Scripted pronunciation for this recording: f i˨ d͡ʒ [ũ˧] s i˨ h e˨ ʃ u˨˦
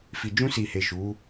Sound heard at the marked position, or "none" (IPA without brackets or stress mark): ũ˧